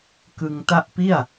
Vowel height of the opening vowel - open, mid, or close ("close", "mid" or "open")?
close